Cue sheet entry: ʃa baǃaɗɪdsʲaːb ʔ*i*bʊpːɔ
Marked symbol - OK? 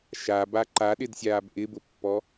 no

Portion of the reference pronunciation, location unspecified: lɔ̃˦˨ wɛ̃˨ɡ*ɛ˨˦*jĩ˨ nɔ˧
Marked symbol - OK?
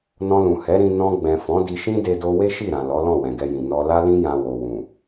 no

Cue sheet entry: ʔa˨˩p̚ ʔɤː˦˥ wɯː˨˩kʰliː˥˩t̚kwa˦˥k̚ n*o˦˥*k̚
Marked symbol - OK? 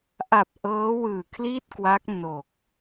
no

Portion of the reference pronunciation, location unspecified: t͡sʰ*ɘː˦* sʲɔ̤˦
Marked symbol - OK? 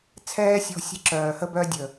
no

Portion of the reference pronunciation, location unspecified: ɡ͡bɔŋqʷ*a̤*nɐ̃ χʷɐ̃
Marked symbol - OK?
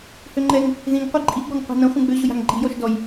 yes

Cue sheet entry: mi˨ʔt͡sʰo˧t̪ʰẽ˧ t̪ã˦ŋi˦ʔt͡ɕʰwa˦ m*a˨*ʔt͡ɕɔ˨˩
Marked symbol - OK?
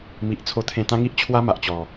yes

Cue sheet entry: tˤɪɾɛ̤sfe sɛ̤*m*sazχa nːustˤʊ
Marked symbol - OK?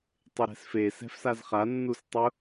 no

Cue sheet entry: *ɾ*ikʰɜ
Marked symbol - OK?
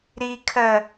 yes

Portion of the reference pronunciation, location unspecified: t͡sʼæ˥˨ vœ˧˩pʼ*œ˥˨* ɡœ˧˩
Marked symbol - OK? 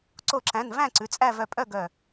yes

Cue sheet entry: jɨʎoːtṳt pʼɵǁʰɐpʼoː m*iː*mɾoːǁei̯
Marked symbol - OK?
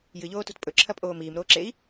yes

